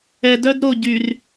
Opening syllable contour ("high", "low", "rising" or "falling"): low